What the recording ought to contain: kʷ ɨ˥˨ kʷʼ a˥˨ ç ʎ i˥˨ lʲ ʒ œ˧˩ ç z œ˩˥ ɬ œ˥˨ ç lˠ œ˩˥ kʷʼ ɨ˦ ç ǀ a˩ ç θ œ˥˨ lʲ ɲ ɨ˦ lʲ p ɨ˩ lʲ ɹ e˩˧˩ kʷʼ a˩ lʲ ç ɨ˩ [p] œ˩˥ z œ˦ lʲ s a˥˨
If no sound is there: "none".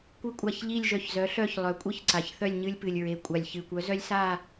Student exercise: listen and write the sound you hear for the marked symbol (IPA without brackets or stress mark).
kʷ